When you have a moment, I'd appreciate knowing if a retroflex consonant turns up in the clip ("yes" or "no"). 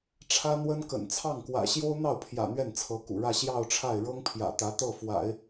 yes